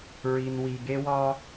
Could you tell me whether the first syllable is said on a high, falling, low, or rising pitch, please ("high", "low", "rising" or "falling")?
low